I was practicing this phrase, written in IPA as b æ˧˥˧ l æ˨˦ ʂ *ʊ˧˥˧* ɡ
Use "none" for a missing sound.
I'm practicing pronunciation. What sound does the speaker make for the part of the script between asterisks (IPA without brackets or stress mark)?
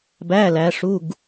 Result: u˧˥˧